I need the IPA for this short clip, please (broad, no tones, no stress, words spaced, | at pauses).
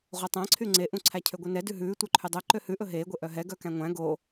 ʁʷœtˤæ̃ǀʰy ŋ͡ǀeʔũ ǀʰæcʰøɡʷɛnɛ dʉɦʉː tʷœǃʰydˤœ ǃøhʉʔɵ ɦeːɡʷe ʔœɦɛ ɡœkæ̃ŋʷæ̃ ɡo